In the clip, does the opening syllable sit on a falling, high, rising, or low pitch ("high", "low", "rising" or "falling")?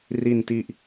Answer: low